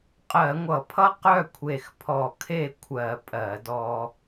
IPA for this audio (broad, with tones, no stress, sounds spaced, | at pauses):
qʼ ɜ˧˩˧ ŋʷ ʌ˧˩˧ pʰ ʌ˥ q œ˥˨ kʷʰ e˧˩ x pʰ ɔ˧˩ kʰ e˥˨ kʷʰ ɜ˧˩˧ pʼ ɜ˧˩˧ d ɔ˧